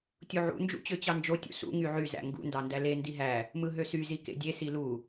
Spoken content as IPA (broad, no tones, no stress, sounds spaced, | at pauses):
tʲ u ʕ ṵ n d͡ʒ ṵ t͡ɕ ø t͡ɕ ɑ n d͡ʒ o tʲ ṵ s ṵ ŋ y ʕ y z æ̰ ŋ ɡ ṵ n d ɑ n d æ l e n d i ɦ æ | m ɯ ɦ ø s y z i k ḛ dʲ e s i l u